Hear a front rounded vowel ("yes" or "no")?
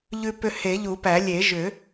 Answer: yes